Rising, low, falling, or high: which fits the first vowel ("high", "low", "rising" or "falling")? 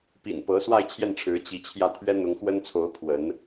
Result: low